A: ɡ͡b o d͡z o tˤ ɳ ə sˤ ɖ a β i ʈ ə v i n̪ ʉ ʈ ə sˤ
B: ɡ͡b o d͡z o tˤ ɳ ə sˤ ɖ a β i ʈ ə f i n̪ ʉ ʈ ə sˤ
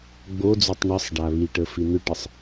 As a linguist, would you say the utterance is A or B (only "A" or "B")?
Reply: B